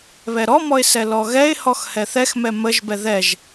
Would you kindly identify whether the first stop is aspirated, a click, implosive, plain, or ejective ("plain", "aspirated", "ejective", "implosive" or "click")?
plain